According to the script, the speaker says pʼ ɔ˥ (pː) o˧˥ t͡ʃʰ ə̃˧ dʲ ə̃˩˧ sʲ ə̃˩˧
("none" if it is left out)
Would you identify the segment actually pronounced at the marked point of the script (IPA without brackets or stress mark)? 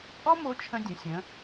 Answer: m